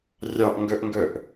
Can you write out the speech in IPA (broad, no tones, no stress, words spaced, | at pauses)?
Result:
rʲɑʔŋɡœʔŋɡœʔ